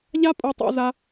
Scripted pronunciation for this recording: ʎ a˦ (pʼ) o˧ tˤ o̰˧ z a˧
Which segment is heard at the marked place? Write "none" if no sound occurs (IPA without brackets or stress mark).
pʼ